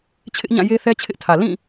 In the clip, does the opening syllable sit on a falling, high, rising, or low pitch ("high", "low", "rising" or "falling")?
high